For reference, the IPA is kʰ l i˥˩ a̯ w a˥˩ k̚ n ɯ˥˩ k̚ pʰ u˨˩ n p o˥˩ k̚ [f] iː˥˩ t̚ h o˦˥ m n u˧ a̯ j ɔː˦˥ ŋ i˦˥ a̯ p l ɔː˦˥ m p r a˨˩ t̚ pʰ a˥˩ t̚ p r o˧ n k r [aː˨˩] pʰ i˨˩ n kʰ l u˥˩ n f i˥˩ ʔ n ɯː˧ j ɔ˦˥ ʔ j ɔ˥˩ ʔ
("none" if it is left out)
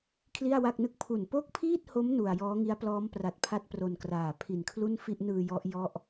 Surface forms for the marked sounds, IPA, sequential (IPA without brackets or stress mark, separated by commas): pʰ, aː˨˩